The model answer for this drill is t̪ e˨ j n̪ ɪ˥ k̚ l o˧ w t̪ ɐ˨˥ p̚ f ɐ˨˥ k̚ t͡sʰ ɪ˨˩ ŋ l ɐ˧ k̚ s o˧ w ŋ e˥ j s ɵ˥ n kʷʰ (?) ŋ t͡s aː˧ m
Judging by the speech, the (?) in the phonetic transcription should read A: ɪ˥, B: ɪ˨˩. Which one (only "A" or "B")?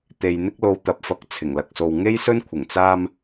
B